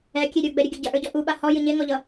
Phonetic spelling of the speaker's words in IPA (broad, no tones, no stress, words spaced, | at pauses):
ɛkʲe ɾʲə˞ɡ͡bɛɾʲɐɡʲɐ ɟɐʔə˞ɟɔ ʔuɓa hɔjɨ ɲeŋɔʎʌ